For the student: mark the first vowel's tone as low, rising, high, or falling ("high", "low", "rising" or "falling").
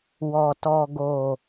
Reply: low